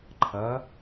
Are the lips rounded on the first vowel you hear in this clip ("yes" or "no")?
no